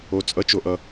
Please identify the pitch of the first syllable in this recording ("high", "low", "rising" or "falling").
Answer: low